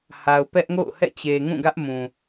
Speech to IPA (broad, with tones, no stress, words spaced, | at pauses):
ha˨ʊ̯pɛ˦ʔŋo̰˦˨ʊ̯hɛ̰˦˨ t͡ɕe˨ŋũ˦˨ɡä˦ʔmũ˨